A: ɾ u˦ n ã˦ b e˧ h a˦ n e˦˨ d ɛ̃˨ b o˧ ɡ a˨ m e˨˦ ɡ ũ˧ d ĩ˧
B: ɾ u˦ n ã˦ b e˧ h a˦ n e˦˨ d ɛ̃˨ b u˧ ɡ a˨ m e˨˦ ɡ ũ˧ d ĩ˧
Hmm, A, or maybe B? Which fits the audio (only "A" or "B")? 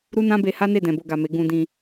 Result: A